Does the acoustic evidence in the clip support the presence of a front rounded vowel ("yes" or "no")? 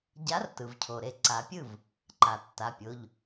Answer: no